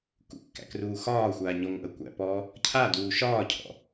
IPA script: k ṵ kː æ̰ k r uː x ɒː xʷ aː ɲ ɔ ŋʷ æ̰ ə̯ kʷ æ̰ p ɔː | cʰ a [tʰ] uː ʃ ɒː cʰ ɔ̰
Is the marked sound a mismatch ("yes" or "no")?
yes